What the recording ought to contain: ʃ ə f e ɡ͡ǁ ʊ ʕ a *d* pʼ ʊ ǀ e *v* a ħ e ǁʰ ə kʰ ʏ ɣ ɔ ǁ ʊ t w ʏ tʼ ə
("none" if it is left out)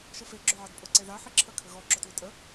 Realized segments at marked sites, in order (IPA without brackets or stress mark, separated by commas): d, ð